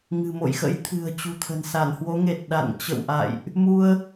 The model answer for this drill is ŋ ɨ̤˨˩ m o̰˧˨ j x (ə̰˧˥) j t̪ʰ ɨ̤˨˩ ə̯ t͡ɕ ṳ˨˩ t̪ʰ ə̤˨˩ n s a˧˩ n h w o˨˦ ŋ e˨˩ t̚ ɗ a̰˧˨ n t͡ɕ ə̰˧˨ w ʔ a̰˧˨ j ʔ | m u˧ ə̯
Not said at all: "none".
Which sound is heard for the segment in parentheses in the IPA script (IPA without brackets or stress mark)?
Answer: ə̰˧˥